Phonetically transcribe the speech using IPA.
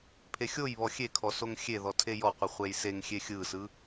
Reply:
pʰ e xʲ o j β ɔ xʲ e kʰ ɔ s o ŋ xʲ e ð ɔ tʰ e j ɔ qʷ i χʷ e j s e ŋ xʲ e xʲ ɯ s ɯ

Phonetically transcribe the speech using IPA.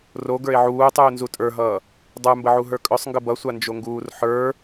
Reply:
r o ɡ ə˞ e̯ ʕ uː tˤ uː n z u tʼ ə˞ ɦ ʌː | dˤ ə˞ m b ə ʕ u ɦ ə˞ kʼ œ sˤ ŋ ɡ ə b ʌ sʷ a n d͡ʒ o ŋ ɡ uː r ħ ə˞

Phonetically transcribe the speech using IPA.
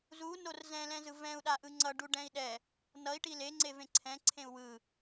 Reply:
z u n o r z ɛ̃ l ɛ̃ z ɯ v ɛ̃ u̯ ɗ a ʔ ɯ ŋ͡ǀ ʌ ɖ u ɖ ɛ̃ i̯ ɗ ɛ | n ʌ i̯ ʈ i l e ŋ͡ǀ e v ẽ ǀʰ ɛ̃ ǀʰ ẽ u̯ w ɯ

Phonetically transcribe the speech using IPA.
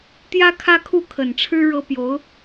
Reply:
t̪ j ä˥ kʰ ä˥ kʰ u˥˩ kʰ ə˨˩ n ʈ͡ʂʰ ɻ̩˥ ɻ ɤ˥ p j o˧˥ ʊ̯

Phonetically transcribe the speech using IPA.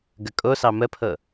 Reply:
ɡ ə kʼ o s ɑ m ə pʰ ɤ

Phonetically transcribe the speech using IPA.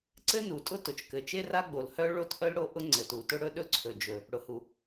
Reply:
ǀ ɘ˥ n u˩ tʼ ʊ˥ t ʊ˩ t͡ʃ k ɘ˩ t͡ʃ e˥ r a˥ ɡ͡b o˩ l h œ˥ ɭ o˥ t ʔ œ˥ l ɽ o˥ ʔ ʊ˥ ŋ͡ǀ ɘ˩ t u˩ t ʊ˥ ɽ ɵ˥ ɗ ɵ˥ ǀʰ ɵ˩ d͡ʒ ɵ˩ | ɽ ʊ˩ h u˩

